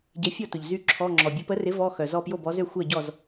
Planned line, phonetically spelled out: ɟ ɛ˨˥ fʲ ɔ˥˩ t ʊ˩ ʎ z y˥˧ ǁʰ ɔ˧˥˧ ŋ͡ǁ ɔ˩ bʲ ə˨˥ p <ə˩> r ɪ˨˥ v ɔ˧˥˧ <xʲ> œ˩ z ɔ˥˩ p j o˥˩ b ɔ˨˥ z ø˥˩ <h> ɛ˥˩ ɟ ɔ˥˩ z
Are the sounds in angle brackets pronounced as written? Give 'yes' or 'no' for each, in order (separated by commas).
no, no, no